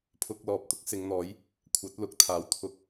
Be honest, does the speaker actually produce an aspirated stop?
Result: yes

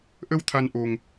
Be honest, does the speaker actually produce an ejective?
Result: no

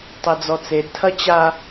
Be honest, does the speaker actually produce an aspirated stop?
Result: yes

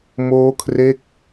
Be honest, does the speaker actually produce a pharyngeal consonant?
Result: no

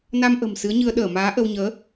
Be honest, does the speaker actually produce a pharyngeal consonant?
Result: no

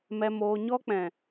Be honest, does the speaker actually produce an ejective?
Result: no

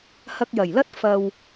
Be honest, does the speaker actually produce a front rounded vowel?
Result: no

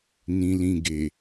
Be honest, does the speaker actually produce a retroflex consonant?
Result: no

